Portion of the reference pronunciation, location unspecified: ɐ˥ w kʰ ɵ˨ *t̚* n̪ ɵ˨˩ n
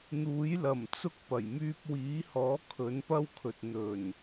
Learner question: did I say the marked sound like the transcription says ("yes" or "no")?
yes